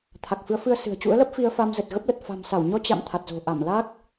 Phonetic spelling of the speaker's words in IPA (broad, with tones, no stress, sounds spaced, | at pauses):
t̪ʰ a˨˩ k̚ f ɨ˨˦ ə̯ f ɨ˧ ə̯ s ɨ̤˨˩ ə̯ t͡ɕ ṵ˧˥ ə̯ l ə˦˥ p̚ f i˧ ə̯ f a˧ m z ə˨˩ t̚ ɣ ə˦˥ p̚ l ə˨˩ t̚ f a̤˨˩ m s a˧˩ w ɲ ɔ˧ t͡ɕ a̰˧˨ m t̪ʰ a˨˩ t̚ z o̤˨˩ ʔ a˧˩ m l a˦˥ k̚